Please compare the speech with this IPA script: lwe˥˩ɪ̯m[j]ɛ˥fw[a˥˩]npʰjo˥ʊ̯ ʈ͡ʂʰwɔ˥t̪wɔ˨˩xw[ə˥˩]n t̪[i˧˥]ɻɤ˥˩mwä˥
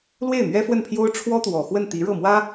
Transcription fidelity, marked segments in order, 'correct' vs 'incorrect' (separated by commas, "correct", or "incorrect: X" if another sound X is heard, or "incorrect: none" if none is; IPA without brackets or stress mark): incorrect: ɥ, incorrect: ə˥˩, correct, correct